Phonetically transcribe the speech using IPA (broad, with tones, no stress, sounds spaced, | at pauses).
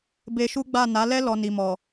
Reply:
b e˧ ʃ u˦ ɡ͡b a˦˨ n a˨˦ l ɛ˦ l ɔ˧ n i˨ m ɔ˨